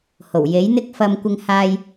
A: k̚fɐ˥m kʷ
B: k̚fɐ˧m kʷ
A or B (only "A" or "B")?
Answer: B